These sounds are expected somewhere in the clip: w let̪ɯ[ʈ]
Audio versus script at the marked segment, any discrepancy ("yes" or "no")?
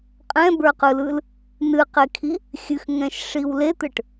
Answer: no